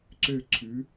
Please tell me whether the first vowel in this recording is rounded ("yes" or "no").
yes